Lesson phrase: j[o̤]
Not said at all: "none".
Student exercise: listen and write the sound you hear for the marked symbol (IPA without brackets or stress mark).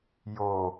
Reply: o